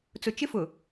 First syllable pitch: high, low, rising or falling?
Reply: low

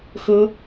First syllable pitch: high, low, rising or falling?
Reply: high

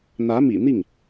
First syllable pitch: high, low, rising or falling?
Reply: rising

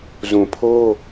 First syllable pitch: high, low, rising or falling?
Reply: low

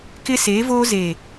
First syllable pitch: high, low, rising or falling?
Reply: high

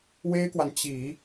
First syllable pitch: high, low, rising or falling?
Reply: high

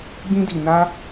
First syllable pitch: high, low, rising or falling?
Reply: high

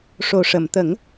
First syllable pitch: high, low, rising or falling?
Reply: low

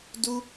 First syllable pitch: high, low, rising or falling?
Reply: high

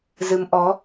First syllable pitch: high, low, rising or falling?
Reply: rising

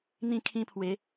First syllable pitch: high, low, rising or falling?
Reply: falling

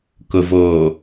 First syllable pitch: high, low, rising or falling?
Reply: low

